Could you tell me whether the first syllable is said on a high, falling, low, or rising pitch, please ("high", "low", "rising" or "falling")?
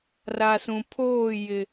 low